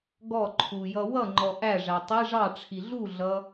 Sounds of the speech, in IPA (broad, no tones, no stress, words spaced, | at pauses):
ɡɔǃʰu jʌwʌŋ͡ǃɔ ʔæʐæ tˤi ʐɑʈ͡ʂʰi ɮuɮʌ